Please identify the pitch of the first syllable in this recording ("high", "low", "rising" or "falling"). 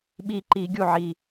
low